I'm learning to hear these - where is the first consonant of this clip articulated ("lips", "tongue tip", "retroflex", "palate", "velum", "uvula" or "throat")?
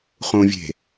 uvula